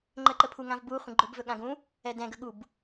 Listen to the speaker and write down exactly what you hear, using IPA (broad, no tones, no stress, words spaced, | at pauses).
ŋ͡ǃəǃəpʰuŋãv bu χʷə̃ɡ͡ǃɵbvɵ ɠãɡũ | ɛdɛ̃ɡə ɠub